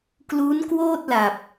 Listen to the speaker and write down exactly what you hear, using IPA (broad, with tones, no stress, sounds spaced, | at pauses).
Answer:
k l uː˦˥ n k w oː˥˩ t̚ l a˨˩ p̚